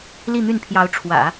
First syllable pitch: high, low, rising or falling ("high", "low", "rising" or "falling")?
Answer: falling